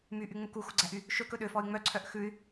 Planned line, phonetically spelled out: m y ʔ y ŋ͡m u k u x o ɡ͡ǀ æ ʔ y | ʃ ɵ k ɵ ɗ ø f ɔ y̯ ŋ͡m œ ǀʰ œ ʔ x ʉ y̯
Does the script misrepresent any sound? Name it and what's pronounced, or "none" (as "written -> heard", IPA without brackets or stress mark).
none